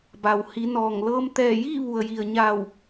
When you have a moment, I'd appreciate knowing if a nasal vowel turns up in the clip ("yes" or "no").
no